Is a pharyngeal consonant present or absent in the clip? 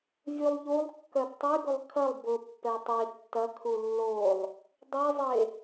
absent